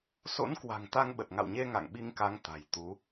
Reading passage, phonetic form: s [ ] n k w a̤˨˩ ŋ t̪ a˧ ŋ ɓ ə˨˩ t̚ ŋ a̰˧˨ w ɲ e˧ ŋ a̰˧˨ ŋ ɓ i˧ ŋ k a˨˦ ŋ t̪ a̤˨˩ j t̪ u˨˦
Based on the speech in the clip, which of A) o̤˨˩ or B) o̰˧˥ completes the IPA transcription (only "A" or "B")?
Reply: B